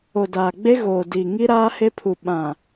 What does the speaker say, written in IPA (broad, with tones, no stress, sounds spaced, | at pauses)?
o˨ d aː˨ ɡ͡b e˦ ɣ oː˨ d i˨ ŋ i˦ ɾ aː˦ h e˦ pʰ u˨ ɓ ã˨